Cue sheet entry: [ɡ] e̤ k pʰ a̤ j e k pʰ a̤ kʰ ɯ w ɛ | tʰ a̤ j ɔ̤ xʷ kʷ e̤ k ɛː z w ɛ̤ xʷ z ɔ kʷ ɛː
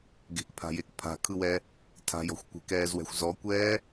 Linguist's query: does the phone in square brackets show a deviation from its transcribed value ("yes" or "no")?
no